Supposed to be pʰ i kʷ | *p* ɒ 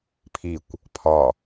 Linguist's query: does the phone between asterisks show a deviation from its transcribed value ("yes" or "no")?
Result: yes